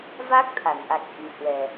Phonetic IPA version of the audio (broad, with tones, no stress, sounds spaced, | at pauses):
v aː˦˥ k̚ t̪ʰ a˧˩ n ʔ a˨˩ k̚ ʔ i˨˩ h w ɛ˨˩